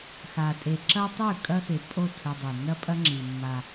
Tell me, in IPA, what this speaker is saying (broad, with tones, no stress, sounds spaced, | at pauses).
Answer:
x a˨ tʼ e˨ ǁ ɐ˦ tˤ ʉ˦˨ kʼ ɐ˦ x e˨ pʼ o˦˨ tʰ ɵ˦ dˤ ʉ˨ n ɐ˦ pʼ ɐ˦ ŋ͡ǁ i˨ mː a˦